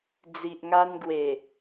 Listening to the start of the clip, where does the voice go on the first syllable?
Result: low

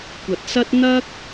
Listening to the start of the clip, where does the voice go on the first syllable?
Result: low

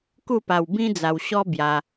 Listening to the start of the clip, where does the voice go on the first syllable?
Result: falling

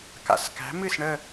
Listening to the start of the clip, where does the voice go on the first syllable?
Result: low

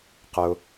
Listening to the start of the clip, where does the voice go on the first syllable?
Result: high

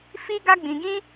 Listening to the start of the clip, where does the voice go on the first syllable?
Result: high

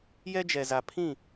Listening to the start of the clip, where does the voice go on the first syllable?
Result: high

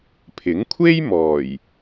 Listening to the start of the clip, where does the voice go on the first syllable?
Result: rising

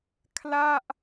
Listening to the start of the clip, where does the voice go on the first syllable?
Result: falling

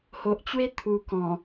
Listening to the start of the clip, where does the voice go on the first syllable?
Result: low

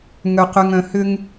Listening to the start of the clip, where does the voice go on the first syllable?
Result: low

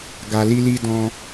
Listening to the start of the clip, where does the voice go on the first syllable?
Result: low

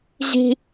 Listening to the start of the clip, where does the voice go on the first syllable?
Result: high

